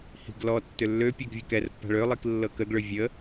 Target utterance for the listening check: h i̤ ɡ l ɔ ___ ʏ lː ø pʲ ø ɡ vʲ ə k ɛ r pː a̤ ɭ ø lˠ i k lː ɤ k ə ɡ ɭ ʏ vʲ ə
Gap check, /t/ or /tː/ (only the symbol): tː